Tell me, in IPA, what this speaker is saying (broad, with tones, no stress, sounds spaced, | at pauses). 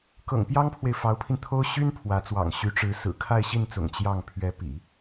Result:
k ɤ̰˨˩ ŋ p j ɑ˥ ŋ pʰ w e˨ ɪ̯ f ɑ˧˥ ʊ̯ pʰ i˧ n t̪ʰ o˥ ʊ̯ ɕ y˥ n pʰ w ä˧˥ t͡s w ɑ̰˨˩ ŋ ɕ y˧˥ ʈ͡ʂ ɻ̩˧˥ s ɹ̩˨˩ kʰ a˥˧ ɪ̯ ɕ i˥˩ n t͡s ʊ̰˨˩ ŋ t͡ɕ j ɑ˥˩ ŋ pʰ ɥ ɛ˧˥ p ḭ˨˩˦